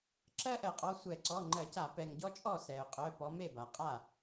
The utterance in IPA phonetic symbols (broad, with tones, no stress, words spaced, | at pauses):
ǁɜ˥ʔɜ˩qʼɔ˩˧˩ sʷɛ˧˩˧ǀɔ˩˧˩ŋ͡ǃɜ˧˩˧ca˧˩˧ pɛ˩ŋɟɔ˥ t͡ʃʼɔ˥˩sɛ˩ʊ̯qʼœ˩˧˩ pɔ˨˦me˥˩ba˩ qʼa˥˩